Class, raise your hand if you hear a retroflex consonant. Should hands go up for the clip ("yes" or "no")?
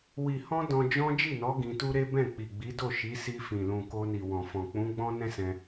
no